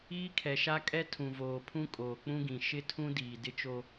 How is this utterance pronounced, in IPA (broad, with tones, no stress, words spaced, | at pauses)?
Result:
iː˦kʰɛ˨ʃa˦kʼɛ˦ tʰũ˨voː˨pʰũ˦ kʼoː˨k͡pũ˦ɡĩ˨ ʃɪ˦tʰũ˦ diː˨dɪ˦t͡ʃo˦